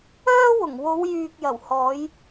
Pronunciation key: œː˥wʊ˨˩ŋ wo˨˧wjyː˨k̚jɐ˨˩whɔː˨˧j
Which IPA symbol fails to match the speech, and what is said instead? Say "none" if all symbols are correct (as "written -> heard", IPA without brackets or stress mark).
none